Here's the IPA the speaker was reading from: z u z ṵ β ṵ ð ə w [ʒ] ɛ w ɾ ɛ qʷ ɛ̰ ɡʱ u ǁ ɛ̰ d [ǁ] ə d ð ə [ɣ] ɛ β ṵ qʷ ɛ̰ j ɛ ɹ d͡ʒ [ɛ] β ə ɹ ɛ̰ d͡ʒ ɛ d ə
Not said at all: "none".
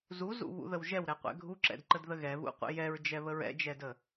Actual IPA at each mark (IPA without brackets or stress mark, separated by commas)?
ʒ, ǃ, ɣ, ɛ